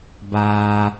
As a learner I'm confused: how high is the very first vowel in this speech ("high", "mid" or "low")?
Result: low